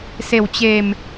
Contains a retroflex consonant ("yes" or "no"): no